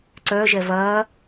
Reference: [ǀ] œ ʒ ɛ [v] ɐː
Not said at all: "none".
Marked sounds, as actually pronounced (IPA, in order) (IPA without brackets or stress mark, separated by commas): ǀ, v